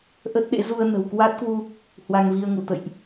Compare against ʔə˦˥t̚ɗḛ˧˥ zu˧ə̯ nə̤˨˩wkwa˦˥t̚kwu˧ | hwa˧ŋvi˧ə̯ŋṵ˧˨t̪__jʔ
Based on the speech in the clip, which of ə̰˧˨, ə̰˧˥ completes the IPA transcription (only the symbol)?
ə̰˧˨